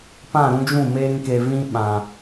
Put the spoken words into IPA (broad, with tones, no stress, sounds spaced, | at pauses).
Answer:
p ã˦˨ ɾ ũ˧ d͡ʒ ũ˦˨ m eː˧ ŋ k e˨ v ĩ˧ ɓ ã˨